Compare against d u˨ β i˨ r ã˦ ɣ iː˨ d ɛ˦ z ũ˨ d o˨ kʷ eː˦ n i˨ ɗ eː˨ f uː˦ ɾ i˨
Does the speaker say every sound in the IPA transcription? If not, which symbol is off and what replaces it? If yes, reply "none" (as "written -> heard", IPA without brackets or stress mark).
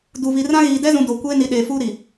none